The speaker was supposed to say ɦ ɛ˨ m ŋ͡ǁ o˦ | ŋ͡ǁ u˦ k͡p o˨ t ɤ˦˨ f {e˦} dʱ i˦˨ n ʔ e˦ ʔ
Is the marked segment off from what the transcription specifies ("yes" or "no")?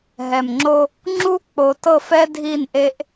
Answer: yes